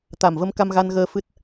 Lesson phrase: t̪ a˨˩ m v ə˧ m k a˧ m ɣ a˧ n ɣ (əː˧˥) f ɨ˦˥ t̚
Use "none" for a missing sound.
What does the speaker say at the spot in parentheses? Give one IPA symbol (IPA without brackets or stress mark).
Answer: əː˧